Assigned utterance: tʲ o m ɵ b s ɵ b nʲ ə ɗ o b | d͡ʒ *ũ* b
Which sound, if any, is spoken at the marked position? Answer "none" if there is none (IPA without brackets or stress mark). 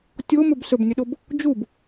u